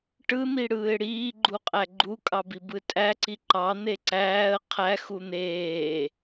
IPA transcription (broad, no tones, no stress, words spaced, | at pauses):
ʈɯn̪iɽɯːɪ̯ ɽiːɡ͡ǃuqʼæ ɡ͡ǃukʼɑbibɯ tʼæǀi ǃɑn̪e ǀæːə̯ qʰæxu n̪eː